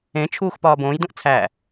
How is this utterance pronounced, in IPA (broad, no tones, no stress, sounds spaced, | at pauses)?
ẽ t͡ʃʰ uː x p ɒː b õː j d õ ʔ t͡sʰ æ